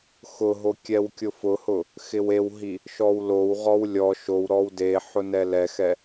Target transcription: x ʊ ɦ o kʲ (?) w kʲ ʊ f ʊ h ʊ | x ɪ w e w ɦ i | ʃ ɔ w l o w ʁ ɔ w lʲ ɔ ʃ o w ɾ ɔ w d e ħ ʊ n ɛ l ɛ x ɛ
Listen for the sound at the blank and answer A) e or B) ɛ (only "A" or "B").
B